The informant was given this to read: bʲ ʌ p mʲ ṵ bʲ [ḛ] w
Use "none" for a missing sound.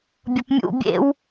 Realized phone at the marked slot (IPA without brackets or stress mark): ḛ